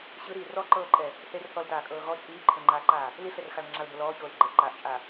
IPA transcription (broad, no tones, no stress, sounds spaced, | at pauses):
ɕ ɯ ɾ iː r ɔ ǃ ɤː ǃʼ ɛ | θ e r θ ɔ l t aː kʼ ɤː ɣ ɔ t͡ʃʼ iː ǃʰ ɛ ŋ͡ǃ aː ǃ aː | l i ɬ ɛ r x a l ŋ͡ǁ a l b o l ɔː ç oː l ɡ͡ǃ ɛ ʔ ǃ aː ʔ t͡ʃʼ a